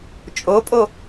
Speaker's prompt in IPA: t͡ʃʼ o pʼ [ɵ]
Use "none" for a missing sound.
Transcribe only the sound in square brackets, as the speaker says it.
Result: o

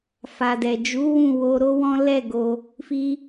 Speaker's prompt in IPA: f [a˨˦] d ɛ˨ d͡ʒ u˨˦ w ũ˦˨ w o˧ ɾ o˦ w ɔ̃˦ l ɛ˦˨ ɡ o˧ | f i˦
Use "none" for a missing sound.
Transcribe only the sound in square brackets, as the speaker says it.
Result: a˨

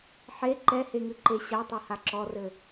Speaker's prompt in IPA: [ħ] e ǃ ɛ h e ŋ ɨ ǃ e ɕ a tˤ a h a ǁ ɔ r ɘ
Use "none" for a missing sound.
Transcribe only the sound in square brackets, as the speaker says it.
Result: ħ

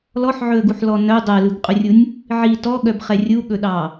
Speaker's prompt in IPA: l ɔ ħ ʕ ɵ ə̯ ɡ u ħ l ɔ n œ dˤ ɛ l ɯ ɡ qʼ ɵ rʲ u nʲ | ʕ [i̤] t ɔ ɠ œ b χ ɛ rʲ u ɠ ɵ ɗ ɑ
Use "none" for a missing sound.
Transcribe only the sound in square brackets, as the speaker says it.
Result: i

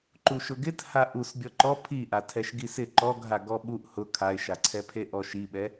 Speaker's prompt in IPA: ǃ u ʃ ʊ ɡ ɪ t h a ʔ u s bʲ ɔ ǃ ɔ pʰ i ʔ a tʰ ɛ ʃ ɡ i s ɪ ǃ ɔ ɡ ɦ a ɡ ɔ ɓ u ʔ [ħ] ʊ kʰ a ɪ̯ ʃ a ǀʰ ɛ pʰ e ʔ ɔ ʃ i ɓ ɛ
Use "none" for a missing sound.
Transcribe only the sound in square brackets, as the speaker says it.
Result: h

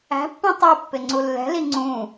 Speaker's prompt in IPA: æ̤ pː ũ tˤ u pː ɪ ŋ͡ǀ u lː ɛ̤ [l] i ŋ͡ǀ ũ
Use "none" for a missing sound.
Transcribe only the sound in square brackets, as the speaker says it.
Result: l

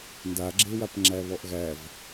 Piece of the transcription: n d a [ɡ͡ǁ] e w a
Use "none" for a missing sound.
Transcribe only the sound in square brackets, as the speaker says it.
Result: ɡ͡ǁ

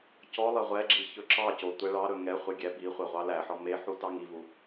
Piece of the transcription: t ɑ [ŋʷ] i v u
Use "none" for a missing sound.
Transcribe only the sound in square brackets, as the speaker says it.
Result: ŋ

